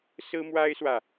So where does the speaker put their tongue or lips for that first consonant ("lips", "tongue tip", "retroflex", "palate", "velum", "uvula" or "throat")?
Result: tongue tip